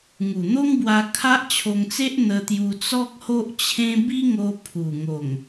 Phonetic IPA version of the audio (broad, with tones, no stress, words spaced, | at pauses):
ŋu˨˩n̪o˦ŋbwa˧ kʰa˦ʔt͡ɕʰo˧ŋt͡se˦ʔ n̪ə˧t̪ju˧ t͡sɔ˦k̚ho˦ʔt͡ɕʰẽ˦ bi˦ŋo˧ pʰu˨˩ŋo˨˩ŋ